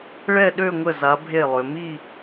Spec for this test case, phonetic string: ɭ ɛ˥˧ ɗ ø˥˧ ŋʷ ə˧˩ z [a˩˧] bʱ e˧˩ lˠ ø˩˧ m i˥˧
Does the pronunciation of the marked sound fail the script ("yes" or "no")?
no